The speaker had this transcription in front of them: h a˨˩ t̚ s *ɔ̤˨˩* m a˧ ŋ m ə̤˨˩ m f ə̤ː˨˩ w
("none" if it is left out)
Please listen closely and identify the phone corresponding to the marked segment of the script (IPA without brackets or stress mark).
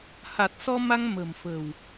ɔ˧